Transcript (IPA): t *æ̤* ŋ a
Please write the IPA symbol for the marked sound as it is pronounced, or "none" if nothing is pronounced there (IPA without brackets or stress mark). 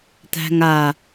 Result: æ̤